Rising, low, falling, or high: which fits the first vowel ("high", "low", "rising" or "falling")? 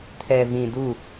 low